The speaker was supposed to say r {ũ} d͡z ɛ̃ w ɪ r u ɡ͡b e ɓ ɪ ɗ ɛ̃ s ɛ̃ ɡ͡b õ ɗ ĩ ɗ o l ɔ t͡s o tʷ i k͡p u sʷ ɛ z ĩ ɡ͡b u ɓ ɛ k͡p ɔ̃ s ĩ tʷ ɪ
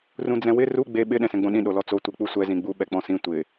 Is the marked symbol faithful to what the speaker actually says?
yes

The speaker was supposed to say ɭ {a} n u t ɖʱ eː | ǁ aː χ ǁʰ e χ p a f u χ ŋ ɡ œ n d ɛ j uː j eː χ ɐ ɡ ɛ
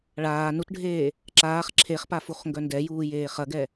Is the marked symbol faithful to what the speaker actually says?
no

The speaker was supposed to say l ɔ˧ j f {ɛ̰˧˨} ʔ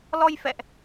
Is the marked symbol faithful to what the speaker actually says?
yes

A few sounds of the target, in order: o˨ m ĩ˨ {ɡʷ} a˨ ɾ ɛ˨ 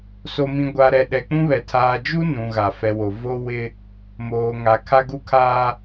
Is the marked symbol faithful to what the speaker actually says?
yes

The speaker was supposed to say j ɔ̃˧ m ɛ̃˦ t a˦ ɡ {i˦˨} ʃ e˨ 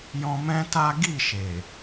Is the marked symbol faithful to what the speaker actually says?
yes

